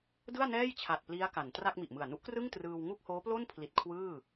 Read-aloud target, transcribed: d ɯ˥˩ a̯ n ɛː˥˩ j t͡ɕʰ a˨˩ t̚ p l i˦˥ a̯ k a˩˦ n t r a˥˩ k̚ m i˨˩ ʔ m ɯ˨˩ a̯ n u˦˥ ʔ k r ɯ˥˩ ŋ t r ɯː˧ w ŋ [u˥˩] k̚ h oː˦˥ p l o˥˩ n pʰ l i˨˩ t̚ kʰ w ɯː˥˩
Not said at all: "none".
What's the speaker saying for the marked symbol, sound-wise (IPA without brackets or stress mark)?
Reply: u˥˩